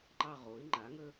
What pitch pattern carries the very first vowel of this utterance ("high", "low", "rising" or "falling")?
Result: falling